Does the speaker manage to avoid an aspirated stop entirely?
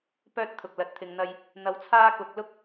no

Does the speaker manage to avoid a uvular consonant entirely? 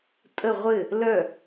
no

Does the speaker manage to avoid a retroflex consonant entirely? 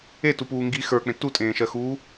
yes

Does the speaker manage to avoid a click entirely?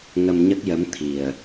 yes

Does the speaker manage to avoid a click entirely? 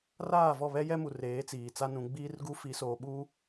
yes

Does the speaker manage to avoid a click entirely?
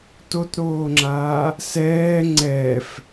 no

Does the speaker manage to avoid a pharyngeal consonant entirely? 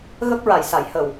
yes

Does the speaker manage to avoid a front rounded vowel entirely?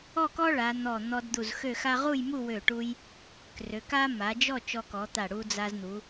no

